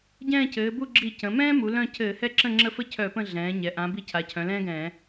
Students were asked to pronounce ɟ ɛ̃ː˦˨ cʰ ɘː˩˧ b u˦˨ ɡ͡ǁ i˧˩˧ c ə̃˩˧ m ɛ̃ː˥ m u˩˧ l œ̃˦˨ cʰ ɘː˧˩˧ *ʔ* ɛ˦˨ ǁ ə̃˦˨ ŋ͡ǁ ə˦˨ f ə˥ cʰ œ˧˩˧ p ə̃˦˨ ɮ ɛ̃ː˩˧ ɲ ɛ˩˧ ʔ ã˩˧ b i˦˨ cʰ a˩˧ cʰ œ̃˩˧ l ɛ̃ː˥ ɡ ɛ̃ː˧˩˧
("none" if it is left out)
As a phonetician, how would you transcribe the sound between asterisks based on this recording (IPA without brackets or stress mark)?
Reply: h